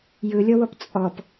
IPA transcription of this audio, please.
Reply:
j ɯ lʲ ɔ w ɔ p t͡sʼ ɔ p

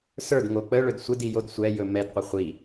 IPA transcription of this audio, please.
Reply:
s ə˞ d ŋ o k͡p ə ɭ ɵ d sʷ ɪ d i j o d sʷ ɛ j ɵ m ɛ d qʷ ɪ χʷ i

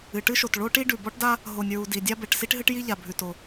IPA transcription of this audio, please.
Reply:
ɨ˩ ʈ ɨ˥ ʃ o˩ t ɭ o˥ ʈ i˥ ɖ ʉ˩ b ɔ˥ ʈ d a˥ | ɦ o˩ nʲ ɹ u˩ d i˩ dʲ a˥ b ɛ˩ ʈ s i˥ ʈ ɦ ɨ˥ ʈ j i˥ ʎ a˩ bʱ ʉ˩ t o˩

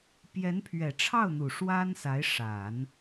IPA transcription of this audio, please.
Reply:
p j ɛ˧˥ n pʰ ɥ ɛ˨˩ ʈ͡ʂʰ ɑ˥˩ ʊ̯ n̪ u˨˩ ʂ w a˥ n s a˧˥ ɪ̯ ʂ a˨˩˦ n

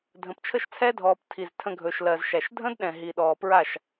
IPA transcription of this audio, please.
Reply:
dʱ ə̃˨ p t͡ʃʰ ə˦ ʃ t͡sʰ ɛ˦ dʱ ɔː˨ p tʰ i˨ z tʰ ə̃˧ ɡʱ ɵ˨ ʃ l ɜ˨ z ʃ æ˨ ʃ dʱ ə̃˦ d ɗ ɛ̃˨ ɦ i˨ ɗ ɔː˨ p ɹ a˦˨ ʃ

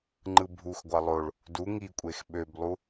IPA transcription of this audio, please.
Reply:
ŋ͡ǃ ɯ bʱ u x ɡʷ ɑ lˠ o ɭ | d u ŋ i kʷʼ e x ɓ ø b lˠ u

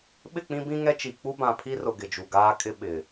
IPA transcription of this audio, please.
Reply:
ɓ ɪ˦˨ k͡p ĩ˦ b ĩ˦ ŋ ɛ˦ t͡ʃ i˨ k͡p u˦ b ã˨ pʰ i˦ r ʊ˨ ɡ ɪ˨ d͡ʒ u˨ ɡ aː˦ kʼ ɪ˦ ɓ ɪ˨

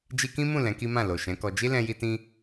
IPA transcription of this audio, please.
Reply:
d͡ʒ i˧ k ĩ˦ m ũ˦˨ l ɛ̃˨˦ k i˦ m ã˦˨ l o˨ ʃ ɛ̃˨˦ k ɔ˧ d͡ʒ i˦ l ɛ̃˧ j i˧ t ĩ˧

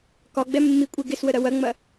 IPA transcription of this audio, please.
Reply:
k ɒ ɡ͡b ɛ mː i kʷʼ e ɡ ɪ s w ə ɾ ɐ w ɐ ŋ͡m ɐ

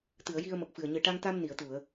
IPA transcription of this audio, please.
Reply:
t̪ ɨ˨˩˨ ə̯ j i˧ ə̯ m ə˨˩ k̚ f ɨ˨˩ ə̯ ɲ ɨ˨˩ ʈ a˧ ŋ t̪ a˧ m n i˨˩˨ ə̯ t̪ u˨˩˨ ə̯

